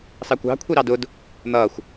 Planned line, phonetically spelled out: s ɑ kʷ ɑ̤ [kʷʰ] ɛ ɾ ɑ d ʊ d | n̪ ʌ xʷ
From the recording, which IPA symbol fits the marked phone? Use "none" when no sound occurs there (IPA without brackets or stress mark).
kʷʰ